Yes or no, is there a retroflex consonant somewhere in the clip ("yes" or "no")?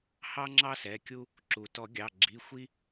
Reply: no